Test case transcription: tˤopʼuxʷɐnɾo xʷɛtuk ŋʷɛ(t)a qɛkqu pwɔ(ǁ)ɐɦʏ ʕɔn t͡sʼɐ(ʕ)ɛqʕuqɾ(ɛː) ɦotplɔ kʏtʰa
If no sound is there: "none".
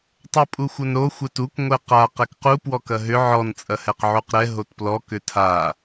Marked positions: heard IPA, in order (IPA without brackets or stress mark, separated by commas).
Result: q, k, h, ɛ